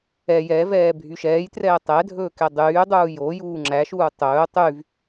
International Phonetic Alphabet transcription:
ɛ j ɛ v ɛː bʱ y ʃ ɛː j t r ɛː tˤ ɛ dʱ ɵː k ɛ dˤ yː dˤ uː j o j uː ŋ͡ǁ æ ʃ uː tˤ ɵː tˤ y v

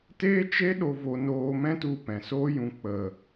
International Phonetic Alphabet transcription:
t eː˦ t͡ʃ e˦ ɗ o˧ v o˧ n oː˧ m ɛ̃˦ t u˧ p ɛ̃˨ s oː˦ j ũ˧ k͡p ə˨

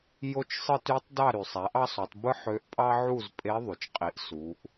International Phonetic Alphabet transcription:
j o˥ t͡ʃ sˤ ɯ˥ t y˧˥ tˤ d ɑ˥˨ ɾ y˩ sˤ æ˩˥ ʔ ɑ˥ sˤ u˩˧ tˤ b ɯ˥ ħ ø˧˥ ʔ pʼ ɑ˥ ʕ u˥˨ z pʼ e˧˥ ðˤ y˩ t͡ʃ qʼ i˩˥ ʔ s u˩˧ ʔ

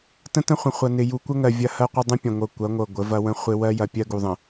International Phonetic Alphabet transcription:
t ə̃˦ t ə̃˦ χʷ ə̃˨ χʷ ɐ˨ n ɪ˨ j u˨ kʷ ə˦ ŋ ɜ˨ vʲ ɐ˦ h ɜ˦ qʷ ɪ˦ dˤ ə̃˦ pʲ ɐ̃˨ ŋʷ ɤ˨ kʷ ɐ˨˦ ŋʷ ɤ˨ ɡʷ ə˨˦ v ɐ˦ w ə̃˦ χʷ ɪ˦ w ɜ˦ j ɐ˨ pʲ ɜ˦ ɡ u˨ ðˤ ə̃˨

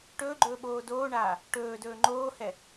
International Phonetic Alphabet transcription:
ʈ ɵː ɡ͡ǃ ɵː ɓ oː d oː ɳ aː | ʈ ɵː d ɵː ŋ͡ǃ oː h ɛ

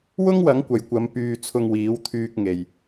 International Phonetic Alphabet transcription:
w ʊ˥ ŋ w ɐ˨˥ ŋ kʷ ɐ˨ j kʷ ɐ˨˧ m p yː˧ t͡sʰ ʊ˧ ŋ w iː˨˥ w t̪ʰ yː˨ k̚ ŋ e˨ j

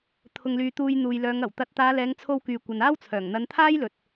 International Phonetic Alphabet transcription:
t̪ʰ ʊ˨ ŋ l yː˨ t̪ uː˧ j n̪ uː˨ j l œː˨˧ ŋ ɐ˨˩ w t̪ ɐ˨˥ t̚ t̪ aː˨˧ l ɛː˨˧ ŋ t͡sʰ o˧ w k yː˨ kʷ ɐ˨ n aː˥ w t͡sʰ œː˨˩ ŋ n̪ ɐ˨˧ n t̪ʰ aː˥ j l ɵ˨ t̚

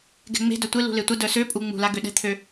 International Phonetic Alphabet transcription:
ɡ ɛ̤ ŋ͡m e̤ d œ tʷ ɪ l ṳ l e tʷ ɐ d œ s ø pʼ u ŋ͡m ṳ l a ɡ ø ɗ ɛ̤ t̪ʰ ø

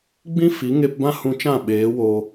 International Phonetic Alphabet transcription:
ɡ͡b ĩ˦ f i˨˦ ŋ e˧ p b ã˦ h ũ˧ t͡ʃ ã˦˨ ɓ eː˨˦ w oː˧

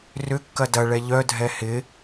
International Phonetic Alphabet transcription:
r ʏ kː ɐ d ɐ ɭ ɛ ʎ œ dʱ ɛ h ɪ

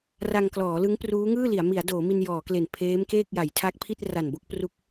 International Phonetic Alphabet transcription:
r a˧ ŋ k l ɔː˩˦ l ɯ˦˥ ŋ p r uː˦˥ ŋ ɯː˥˩ l i˩˦ a̯ m i˩˦ a̯ d oː˩˦ m i˧ n j ɔː˩˦ k l e˨˩ n pʰ eː˦˥ m k eː˥˩ k̚ j a˩˦ j tʰ a˦˥ k̚ pʰ i˥˩ t̚ r a˨˩ n b o˥˩ k̚ p r u˦˥ k̚

